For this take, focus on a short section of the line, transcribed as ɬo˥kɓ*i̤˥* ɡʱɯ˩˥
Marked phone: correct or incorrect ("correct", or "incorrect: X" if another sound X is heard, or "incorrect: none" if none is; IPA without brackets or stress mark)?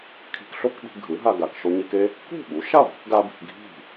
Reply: incorrect: i̤˧